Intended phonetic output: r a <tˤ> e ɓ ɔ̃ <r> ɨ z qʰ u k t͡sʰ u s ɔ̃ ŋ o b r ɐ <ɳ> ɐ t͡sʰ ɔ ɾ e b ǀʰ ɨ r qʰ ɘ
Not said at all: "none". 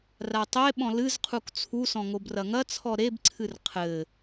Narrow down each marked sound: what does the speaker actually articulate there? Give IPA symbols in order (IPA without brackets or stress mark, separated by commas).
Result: tˤ, l, ŋ